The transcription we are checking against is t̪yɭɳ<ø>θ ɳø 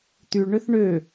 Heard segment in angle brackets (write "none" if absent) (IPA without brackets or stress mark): ø